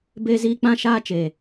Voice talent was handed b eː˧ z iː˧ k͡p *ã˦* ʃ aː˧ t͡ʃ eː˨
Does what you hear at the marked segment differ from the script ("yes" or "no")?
yes